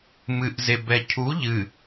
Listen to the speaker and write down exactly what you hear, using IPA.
m ɨ ʔ z e b ɛ cʰ u ʎ ɨ

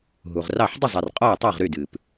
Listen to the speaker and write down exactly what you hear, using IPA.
ɦ u˨ ʁ r ɑ˥˨ ħ dˤ ə˥˨ zˤ ɛ˨ r qʼ ɔ˥˨ ə̯ tˤ ʌː˥˨ ʁ ɾ y˥˨ d ɨː˨ p

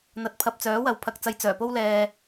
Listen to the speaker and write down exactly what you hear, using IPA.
n̪ ɐ˨˥ t̚ pʰ ɐ˨ p̚ t͡s œː˨˥ w ɐ˨ w pʰ ɐ˨ k̚ t͡s ɐ˨˧ j t͡s œː˨˩ p o˧ w l ɛː˨

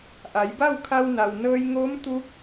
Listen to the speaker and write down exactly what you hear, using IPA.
ʔ a˩˧ j b a˥˨ w kʰ a˧ w n a˩ w n ɤː˧ j ŋ oː˧˥ m t̪ uː˧˥ k̚

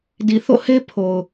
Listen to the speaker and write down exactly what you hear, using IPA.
d i˨ θ o̰˦˨ h e˦ pʰ o˨ ʊ̯

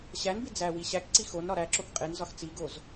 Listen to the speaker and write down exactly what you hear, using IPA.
ɕ æ n b i d͡z æ w i ɕ æ k ǀ i x o n ɾ ɒ ɾ æ ǁ o k qʼ e n z ɒ x t͡s i ɡ o z

